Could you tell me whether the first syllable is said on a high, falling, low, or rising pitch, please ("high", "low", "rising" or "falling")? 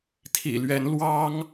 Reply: low